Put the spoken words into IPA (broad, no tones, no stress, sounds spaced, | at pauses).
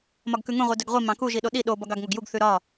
m ɒ ɡ k ʉ ŋ ũ ʁʷ i d œ ɡ ʁʷ i m ɑ̃ k u ʒ i ɗ o ɗ i ɗ o b ɒ ɡ ɑ ɡ ŋ o ɡ j u ɡ θ ʉ ɾ ɒ